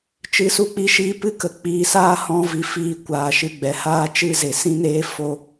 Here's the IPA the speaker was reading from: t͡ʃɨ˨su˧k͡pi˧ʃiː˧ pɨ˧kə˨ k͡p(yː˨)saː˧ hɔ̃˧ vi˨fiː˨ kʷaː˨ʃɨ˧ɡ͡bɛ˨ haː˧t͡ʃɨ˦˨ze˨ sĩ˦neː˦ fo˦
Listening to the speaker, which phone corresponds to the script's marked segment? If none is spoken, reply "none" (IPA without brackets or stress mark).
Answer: iː˨